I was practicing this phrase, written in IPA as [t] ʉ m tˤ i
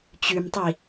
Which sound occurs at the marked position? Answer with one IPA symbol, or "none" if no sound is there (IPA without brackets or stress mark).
t͡ɕ